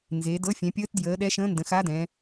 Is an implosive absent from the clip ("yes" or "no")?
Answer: no